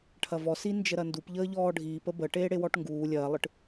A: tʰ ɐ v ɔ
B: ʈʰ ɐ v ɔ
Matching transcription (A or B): B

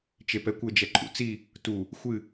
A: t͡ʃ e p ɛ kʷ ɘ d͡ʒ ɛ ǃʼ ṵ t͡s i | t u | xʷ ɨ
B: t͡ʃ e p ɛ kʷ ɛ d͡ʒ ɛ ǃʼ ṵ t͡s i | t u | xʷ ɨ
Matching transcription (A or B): A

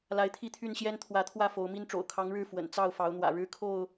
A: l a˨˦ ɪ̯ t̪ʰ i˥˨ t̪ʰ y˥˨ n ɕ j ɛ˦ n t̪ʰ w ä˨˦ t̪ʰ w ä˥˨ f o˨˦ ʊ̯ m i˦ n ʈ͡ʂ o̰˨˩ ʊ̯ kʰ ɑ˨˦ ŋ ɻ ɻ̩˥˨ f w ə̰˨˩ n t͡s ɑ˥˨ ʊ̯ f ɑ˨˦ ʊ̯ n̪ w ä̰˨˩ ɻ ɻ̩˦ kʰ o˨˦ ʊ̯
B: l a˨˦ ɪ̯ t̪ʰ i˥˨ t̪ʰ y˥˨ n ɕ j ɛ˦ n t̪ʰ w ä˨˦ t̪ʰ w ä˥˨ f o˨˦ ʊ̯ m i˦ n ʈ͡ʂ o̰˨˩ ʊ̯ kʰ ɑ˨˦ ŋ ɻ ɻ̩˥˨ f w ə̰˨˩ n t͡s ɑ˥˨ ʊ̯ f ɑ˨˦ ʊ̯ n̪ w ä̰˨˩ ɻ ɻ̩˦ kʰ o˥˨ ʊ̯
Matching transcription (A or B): B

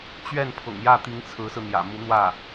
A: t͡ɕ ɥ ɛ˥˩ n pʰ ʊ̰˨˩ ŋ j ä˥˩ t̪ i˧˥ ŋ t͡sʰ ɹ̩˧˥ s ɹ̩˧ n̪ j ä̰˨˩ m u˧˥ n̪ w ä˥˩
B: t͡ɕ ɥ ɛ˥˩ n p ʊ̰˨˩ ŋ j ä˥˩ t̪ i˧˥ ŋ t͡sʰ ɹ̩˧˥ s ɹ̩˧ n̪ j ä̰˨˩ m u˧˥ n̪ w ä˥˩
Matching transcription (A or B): A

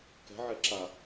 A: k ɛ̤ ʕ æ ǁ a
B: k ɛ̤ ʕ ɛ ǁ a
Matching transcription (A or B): B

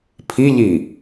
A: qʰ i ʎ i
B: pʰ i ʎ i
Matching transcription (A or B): B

